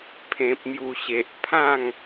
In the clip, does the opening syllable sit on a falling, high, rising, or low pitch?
low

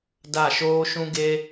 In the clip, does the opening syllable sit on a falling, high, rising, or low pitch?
falling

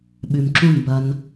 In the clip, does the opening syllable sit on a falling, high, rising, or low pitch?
low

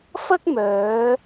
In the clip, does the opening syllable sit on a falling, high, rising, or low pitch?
high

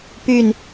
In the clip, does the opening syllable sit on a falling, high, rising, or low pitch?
falling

